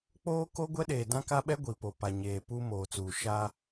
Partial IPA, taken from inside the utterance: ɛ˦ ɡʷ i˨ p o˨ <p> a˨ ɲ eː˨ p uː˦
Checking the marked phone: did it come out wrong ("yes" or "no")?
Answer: no